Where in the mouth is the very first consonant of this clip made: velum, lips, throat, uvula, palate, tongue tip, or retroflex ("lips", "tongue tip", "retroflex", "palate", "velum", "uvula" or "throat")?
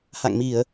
throat